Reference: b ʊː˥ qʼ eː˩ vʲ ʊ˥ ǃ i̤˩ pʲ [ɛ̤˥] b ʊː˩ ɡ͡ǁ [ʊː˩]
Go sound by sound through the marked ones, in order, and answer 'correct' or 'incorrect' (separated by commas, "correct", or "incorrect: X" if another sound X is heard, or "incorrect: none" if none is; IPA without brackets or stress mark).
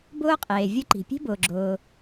incorrect: e̤˥, correct